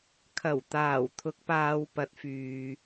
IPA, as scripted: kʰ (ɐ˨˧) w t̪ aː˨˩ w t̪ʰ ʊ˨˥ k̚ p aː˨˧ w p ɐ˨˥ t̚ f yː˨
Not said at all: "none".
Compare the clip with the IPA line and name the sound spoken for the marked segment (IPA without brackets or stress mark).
ɐ˨˩